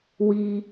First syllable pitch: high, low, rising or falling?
high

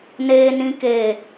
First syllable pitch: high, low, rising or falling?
high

